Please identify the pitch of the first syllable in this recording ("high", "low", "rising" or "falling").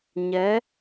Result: rising